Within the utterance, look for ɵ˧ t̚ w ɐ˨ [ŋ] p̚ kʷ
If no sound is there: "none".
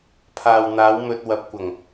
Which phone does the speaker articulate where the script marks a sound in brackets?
none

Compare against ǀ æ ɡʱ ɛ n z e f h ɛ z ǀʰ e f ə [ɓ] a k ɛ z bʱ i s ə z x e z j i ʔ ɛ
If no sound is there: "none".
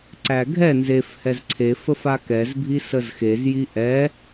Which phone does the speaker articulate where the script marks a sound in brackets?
f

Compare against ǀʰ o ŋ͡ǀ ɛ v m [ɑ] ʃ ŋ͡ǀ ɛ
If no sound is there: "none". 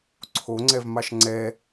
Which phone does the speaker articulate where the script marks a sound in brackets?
ɑ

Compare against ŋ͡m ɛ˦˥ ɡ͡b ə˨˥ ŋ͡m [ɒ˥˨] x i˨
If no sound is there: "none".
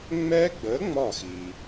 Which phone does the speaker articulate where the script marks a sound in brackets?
ɒ˥˨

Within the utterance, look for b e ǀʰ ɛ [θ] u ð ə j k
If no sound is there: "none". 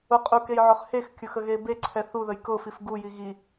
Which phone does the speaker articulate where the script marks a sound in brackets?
θ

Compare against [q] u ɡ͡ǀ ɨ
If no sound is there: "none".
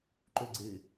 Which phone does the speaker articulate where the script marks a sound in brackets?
ǃ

